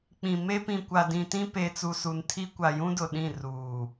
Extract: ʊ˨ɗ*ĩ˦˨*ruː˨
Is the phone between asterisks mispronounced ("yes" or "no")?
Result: no